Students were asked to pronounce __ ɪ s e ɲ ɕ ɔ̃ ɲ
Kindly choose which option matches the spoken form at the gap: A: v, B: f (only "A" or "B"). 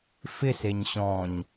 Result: B